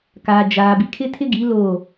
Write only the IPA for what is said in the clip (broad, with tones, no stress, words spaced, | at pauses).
kaː˨d͡ʒaː˨ bi˨kʰɪ˦tʰɪ˦ɡi˨˦ lo˦˨